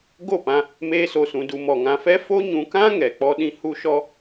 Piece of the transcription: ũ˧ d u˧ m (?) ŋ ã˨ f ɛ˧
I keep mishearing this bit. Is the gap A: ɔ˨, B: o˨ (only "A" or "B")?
A